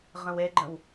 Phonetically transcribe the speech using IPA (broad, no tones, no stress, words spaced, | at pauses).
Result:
ʁə̃weɡ͡ǃə̃w